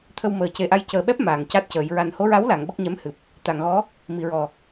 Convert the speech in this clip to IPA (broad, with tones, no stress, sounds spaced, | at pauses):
t̪ʰ ə˧ w m əː˨˩ c e˨˩ ʔ a˧ j c əː˨˩ ɓ ɛ˦˥ p̚ m aː˨˩ ŋ c a˦˥ t̚ c əː˨˩˦ j ɹ a˨˩ n h o˧˥ ɹ a˧˥ w l a˨˩˨ ŋ ɓ ə˦˥ k̚ ɲ ɛ˧˥ m h ɨ˨˩ p̚ | t̪ a˨˩˨ ŋ ɣ ɔ˧˥ | m i˨˩˨ ɹ ɔ˨˩